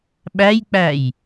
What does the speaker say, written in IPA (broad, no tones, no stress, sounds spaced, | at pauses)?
ɓ æ j k͡p æ j